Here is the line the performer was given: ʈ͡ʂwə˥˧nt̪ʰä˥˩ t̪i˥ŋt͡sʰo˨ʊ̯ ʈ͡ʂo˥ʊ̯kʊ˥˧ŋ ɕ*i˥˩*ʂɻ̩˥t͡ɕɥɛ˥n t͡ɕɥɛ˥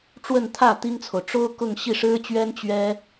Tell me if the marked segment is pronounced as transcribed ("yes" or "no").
yes